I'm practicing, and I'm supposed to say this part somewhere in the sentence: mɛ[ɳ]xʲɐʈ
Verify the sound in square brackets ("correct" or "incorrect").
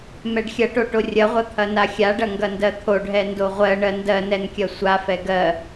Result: incorrect